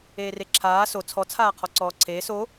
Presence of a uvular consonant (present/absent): present